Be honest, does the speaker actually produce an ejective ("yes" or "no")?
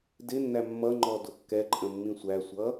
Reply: yes